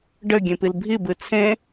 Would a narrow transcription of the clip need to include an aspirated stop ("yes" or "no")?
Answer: yes